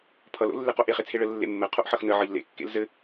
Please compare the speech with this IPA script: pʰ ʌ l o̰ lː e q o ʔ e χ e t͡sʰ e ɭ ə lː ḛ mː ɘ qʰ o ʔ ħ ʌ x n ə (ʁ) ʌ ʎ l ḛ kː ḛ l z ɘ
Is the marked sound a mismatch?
yes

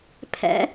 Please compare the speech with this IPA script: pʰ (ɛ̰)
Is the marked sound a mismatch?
no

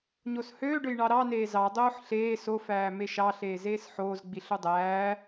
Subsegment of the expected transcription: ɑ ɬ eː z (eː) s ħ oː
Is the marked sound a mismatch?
no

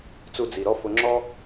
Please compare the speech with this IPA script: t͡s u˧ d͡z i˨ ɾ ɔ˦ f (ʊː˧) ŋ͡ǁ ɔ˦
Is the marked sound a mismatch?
yes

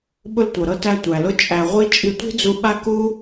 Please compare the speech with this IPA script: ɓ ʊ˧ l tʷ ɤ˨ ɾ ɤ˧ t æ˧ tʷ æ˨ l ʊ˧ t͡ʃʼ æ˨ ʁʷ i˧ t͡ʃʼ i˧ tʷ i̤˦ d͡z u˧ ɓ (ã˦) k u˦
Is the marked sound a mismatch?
yes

